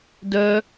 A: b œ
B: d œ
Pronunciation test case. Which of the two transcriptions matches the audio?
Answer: B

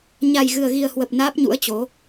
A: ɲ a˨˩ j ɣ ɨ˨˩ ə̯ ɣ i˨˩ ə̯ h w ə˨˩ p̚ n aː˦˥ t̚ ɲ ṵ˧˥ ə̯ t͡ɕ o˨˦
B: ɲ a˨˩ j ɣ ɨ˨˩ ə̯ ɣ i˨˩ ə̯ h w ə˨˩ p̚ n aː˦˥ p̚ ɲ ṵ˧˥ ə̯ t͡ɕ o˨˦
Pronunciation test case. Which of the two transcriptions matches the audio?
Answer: B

